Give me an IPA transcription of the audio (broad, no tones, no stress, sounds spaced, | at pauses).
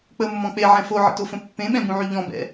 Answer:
k͡p ə mː ɔ̃ k͡p e ʕ ɛ̃ f o ʕ ə̰ t o f ə̃ pː ẽ ɓ ɛ̃ b ũ ʕ y ʎ ɔ̃ b ɛ̰